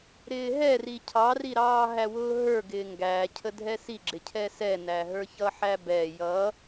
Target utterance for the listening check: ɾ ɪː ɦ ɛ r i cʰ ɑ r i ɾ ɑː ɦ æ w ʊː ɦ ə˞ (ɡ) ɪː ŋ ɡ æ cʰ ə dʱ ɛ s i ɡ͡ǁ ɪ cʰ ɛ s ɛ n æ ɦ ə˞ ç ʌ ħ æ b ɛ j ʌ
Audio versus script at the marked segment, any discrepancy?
no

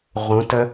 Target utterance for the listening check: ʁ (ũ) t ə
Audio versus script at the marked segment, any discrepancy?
no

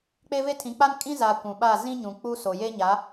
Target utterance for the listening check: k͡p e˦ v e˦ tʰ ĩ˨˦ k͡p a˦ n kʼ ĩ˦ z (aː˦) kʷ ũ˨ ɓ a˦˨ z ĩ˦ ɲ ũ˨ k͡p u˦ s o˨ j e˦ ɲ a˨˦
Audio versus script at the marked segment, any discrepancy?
yes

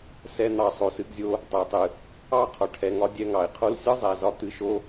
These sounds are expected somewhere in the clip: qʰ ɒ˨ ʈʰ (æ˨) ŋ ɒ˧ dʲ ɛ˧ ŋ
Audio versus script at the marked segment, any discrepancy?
yes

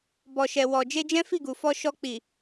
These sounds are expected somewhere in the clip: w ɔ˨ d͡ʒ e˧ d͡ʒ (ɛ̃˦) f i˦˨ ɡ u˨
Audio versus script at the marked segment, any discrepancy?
no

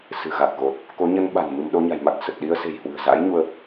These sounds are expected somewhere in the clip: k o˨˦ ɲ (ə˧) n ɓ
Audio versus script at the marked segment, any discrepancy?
no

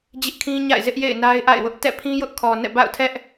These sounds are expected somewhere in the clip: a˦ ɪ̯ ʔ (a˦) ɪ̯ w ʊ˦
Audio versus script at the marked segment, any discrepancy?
yes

